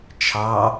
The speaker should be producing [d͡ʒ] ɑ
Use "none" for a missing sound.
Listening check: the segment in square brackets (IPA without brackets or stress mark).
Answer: t͡ʃʰ